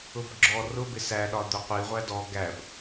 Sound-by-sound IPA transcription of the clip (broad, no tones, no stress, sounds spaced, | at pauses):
ʊ b ɡ͡ǁ ɔ r ʊ b ɪ s æ ɗ ɒ d̪ ʊ qʷ i ʁʷ æ d ɔ ɡ æ b